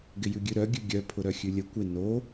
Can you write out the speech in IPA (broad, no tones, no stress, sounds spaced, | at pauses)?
ɡ ɪ j ʉ ɡʲ ʉ ɾ œ ɡʲ ʉ ɡʲ œ pʰ ʊ ɾ œ xʲ ʉ lʲ ə kʷ ɪ n o